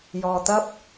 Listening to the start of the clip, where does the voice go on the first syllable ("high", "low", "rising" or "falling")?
low